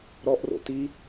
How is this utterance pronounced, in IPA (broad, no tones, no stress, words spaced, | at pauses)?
ɾɔʔro̰ ti